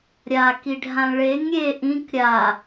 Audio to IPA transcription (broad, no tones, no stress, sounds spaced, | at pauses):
ɾʲ a k i ɖʱ ã ɭ e ŋ ɾʲ e ʔ ĩ k ɾʲ a